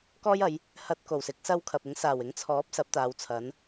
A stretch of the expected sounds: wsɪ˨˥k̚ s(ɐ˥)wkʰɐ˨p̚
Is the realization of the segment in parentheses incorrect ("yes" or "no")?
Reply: no